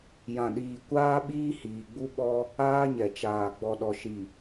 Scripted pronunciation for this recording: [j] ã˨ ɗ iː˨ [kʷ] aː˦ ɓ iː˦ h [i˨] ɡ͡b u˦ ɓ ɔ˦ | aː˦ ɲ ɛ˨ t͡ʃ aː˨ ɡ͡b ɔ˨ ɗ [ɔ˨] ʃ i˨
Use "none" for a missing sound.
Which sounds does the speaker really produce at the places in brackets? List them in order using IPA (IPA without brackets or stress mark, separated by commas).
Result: j, kʷ, iː˨, ɔ˨